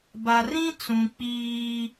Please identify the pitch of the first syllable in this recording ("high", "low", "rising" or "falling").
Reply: low